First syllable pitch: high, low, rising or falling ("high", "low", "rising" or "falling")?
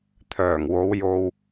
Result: low